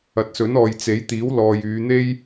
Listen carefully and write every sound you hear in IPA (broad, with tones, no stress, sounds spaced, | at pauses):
ɐ˨ t̚ s ɵ˨˥ n ɔː˨ j t͡s e˨˥ j t̪ iː˨˥ w l ɔː˨ j yː˨˧ n̪ e˥ j